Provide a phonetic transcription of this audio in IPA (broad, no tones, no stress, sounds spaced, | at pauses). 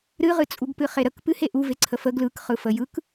ɾ ɨ ʁ ɨ t͡sʼ u ɡ p ɨ χ e ɾ ə k p ɨ h e ʔ u v e ǀʰ ə f ə ɡ l ɯ k χ ɯ f ə j ɯ k